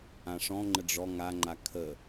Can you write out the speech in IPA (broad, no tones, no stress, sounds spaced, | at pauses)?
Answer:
ã ʂ ɔ̃ ŋ͡ǃ ə ɖ͡ʐ ɔ ŋ a ŋ͡ǃ a kʰ ə